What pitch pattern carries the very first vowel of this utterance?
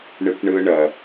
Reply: low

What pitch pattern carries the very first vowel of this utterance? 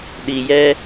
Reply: low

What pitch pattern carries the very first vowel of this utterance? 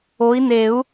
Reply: rising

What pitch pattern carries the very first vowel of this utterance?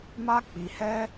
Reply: high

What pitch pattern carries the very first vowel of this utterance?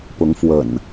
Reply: rising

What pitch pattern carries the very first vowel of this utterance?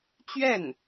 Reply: falling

